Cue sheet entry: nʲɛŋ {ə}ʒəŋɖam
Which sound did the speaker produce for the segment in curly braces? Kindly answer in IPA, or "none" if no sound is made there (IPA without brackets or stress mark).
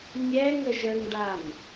ə